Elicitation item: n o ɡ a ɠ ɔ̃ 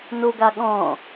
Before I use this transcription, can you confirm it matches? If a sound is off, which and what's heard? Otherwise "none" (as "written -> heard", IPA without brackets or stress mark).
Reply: none